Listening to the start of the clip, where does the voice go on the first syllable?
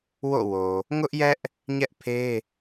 falling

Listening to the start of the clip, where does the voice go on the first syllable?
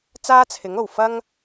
high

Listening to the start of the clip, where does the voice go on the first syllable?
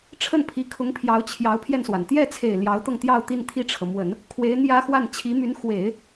falling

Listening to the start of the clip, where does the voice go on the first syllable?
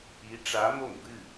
rising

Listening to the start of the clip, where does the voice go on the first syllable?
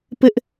high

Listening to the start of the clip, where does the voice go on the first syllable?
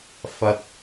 low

